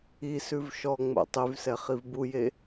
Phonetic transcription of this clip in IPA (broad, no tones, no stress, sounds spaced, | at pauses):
i s ʉ v ʃ ɔ ŋ͡m o̰ tˤ y v s ɛ χ i v b u j e